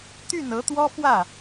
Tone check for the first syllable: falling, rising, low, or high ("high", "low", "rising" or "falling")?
falling